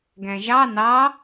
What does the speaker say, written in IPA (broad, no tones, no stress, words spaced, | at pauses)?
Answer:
ɡæ̃ʒɑ nɑ